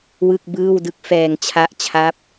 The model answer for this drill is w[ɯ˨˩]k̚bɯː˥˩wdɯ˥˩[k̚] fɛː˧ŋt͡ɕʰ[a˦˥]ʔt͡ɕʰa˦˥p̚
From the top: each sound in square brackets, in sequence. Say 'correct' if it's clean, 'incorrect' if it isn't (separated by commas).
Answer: incorrect, correct, correct